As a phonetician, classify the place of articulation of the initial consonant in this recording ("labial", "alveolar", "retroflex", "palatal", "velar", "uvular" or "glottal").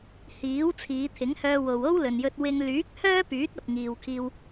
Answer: glottal